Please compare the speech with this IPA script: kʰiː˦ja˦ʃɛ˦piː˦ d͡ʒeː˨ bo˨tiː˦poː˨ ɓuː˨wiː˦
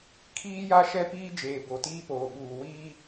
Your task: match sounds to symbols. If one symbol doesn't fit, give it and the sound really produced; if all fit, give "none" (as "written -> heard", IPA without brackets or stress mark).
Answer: none